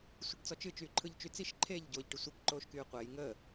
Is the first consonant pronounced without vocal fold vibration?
yes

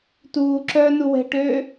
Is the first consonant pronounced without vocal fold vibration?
yes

